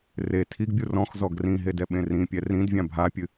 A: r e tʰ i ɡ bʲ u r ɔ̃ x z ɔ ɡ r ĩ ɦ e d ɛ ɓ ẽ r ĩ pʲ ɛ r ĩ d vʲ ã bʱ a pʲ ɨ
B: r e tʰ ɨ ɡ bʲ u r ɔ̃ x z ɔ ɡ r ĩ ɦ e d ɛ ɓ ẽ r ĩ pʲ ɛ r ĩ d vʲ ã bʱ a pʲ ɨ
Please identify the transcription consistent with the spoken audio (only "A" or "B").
A